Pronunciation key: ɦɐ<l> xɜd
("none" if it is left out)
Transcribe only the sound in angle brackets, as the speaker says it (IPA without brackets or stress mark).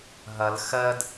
l